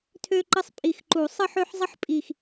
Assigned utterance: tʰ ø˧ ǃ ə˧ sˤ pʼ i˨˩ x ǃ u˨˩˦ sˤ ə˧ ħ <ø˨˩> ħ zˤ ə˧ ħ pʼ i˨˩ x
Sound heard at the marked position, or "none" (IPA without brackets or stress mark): ø˧